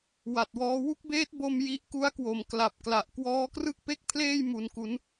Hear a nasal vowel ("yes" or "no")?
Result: no